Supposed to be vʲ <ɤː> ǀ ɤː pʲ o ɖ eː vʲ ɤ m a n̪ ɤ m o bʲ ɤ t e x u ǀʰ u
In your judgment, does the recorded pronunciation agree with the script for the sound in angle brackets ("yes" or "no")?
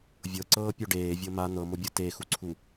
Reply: no